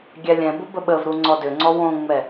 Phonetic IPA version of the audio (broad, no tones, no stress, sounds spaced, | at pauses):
ɡʲ æ lʲ ɛ̃ b ʊ b ə ɓ ə v ɾ u ŋ͡ǀ ɔ d ʏ ŋ͡ǀ ɔ w õ ŋ͡m ɛ